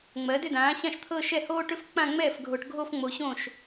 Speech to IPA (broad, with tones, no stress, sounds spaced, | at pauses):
ŋ͡m ɜ˩˥ d ʏ˥˧ d ãː˩˥ ɕ ã˥˩ ʃ t̪ʰ ɤ˥˧ ʃ ɛ˥˩ h oː˥ ʈ ʏ˥ f k͡p ã˥˧ ŋ͡m ɛː˥˩ f ɡʱ o˨ ʈ ɡʱ o˥˧ f ŋ͡m o˨ ɕ õ˥˩ ʃ